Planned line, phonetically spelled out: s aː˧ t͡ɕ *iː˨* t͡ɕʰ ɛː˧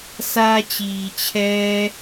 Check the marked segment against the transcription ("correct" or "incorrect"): correct